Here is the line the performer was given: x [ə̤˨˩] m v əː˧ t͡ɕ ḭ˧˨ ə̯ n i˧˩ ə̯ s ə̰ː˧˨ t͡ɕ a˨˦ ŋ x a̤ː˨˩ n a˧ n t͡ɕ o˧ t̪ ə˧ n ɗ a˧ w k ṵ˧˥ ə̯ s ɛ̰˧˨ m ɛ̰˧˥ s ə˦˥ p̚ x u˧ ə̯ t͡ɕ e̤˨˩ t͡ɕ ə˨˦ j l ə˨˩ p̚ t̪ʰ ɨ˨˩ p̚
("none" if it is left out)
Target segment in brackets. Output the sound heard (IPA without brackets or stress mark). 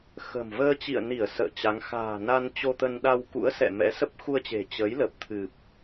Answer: ə̤˨˩